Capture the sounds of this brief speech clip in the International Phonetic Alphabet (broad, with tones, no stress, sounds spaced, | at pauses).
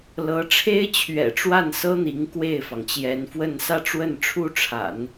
l ɤ˧˥ ʈ͡ʂʰ e˥ ɪ̯ t͡ɕʰ ɥ ɛ̰˨˩ ʈ͡ʂ w a˥˩ n s ɤ˥ n̪ i˧˥ ŋ k w e˥˩ ɪ̯ f ɑ˩ ŋ t͡ɕ j ɛ˧˥ n f w ə˥˧ n s ä˥˧ ʈ͡ʂ w ə˥˩ n ʈ͡ʂʰ u˥ ʈ͡ʂʰ a̰˨˩˦ n